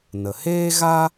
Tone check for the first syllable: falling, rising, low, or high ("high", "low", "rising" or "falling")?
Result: low